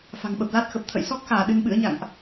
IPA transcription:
f a̤˨˩ ŋ ɓ ə˨˩ p̚ l a˦˥ t̚ x ə˨˩ p̚ t̪ʰ ə̰˧˨ j s ɔ˦˥ k̚ x aː˧˩ ɗ ɨ˧ n ɓ ɨ̰˧˥ ə̯ ɲ a̰˧˨ ŋ ʔ

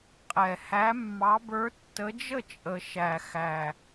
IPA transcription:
qʼ ɛ˨˩ h æ˨˦ mː ɑ˨˦ b ə˞˨˦ tː ə˨˦ d͡ʒ ə˥˩ t͡ʃʼ ə˨˩ ʃ æ˨˩ x æ˨˩

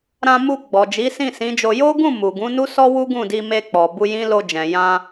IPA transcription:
ɾ ã˧ m u˧ ɡ͡b ɔ˨ d͡ʒ i˨˦ s ĩ˦˨ s ĩ˨˦ d͡ʒ o˧ j o˦ ɡ ũ˦˨ m u˨ ɡ ũ˨˦ n u˦ s ɔ˦ w u˦ ɡ ũ˦˨ d i˧ m e˧ k͡p ɔ˨ b u˧ j ĩ˦ l o˧ d͡ʒ ɛ̃˨ j ã˧

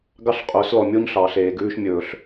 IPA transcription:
ɡ ɑ˦ ɬ qʼ ɵː˨˦ s l ɔ˨ mʲ o˦ ɲ ɬ ɑ˨ ɬ eː˨ ɡ ʉː˧ ʃ mʲ ɵː˨ ɬ

